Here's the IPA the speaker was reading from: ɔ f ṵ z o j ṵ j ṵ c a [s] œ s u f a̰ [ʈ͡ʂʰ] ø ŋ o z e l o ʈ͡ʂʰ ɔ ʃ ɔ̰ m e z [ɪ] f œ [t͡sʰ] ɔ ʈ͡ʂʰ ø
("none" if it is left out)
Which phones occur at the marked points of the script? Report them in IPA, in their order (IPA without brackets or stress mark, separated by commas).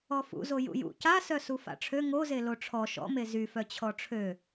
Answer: s, ʈ͡ʂʰ, y, t͡ɕʰ